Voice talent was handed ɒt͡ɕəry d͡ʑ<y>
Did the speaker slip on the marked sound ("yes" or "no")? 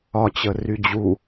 yes